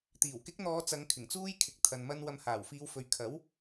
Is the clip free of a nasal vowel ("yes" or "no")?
yes